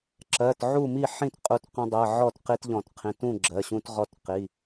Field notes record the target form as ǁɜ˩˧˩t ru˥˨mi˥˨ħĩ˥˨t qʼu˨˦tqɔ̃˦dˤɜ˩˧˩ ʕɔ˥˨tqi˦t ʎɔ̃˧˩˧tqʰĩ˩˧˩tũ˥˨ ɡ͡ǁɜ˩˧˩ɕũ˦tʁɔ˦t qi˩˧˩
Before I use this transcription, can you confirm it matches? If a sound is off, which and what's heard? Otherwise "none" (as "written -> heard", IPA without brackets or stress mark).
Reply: r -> ʕ